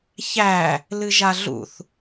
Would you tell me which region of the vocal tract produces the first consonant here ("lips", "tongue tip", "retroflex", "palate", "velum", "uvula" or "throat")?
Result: palate